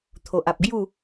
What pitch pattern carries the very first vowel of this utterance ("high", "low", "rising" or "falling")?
low